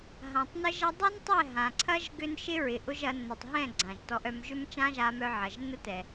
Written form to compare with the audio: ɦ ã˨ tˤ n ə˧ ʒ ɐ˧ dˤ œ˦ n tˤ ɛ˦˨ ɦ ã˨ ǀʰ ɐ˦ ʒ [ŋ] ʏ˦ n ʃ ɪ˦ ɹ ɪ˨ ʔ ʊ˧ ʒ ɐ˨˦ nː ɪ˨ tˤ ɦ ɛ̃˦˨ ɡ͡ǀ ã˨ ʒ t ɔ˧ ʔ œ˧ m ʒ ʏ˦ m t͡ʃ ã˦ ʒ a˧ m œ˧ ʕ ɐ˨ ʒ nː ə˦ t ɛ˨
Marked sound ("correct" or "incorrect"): incorrect